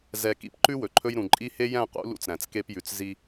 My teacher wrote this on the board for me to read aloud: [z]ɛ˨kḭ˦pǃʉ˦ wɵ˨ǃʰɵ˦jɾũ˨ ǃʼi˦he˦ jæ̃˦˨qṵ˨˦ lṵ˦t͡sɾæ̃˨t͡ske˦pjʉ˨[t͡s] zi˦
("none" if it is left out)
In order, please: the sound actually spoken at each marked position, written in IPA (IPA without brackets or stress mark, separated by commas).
z, t͡s